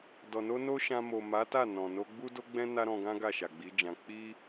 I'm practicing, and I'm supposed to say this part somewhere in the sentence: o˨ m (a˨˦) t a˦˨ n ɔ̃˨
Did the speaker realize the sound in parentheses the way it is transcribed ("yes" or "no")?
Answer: yes